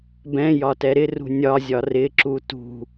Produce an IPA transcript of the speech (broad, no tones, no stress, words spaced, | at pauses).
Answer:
bɛ̃jɒtɛ ɾɪrṳ nʲɒzʲɒ rɪǁu tṳ